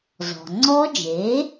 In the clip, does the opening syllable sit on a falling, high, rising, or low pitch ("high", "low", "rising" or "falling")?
low